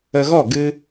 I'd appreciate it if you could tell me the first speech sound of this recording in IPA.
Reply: ə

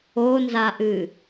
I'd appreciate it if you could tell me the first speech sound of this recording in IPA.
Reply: o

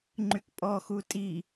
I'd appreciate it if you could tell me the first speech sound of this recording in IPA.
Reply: ŋ͡ǃ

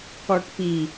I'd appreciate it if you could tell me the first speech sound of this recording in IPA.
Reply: k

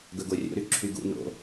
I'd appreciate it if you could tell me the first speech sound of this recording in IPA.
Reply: ɡ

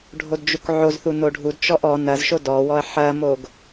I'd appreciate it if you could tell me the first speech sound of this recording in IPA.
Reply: ɖʱ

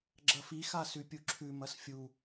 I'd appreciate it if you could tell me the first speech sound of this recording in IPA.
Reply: ɡ͡ǁ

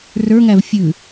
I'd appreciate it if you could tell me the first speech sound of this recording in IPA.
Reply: r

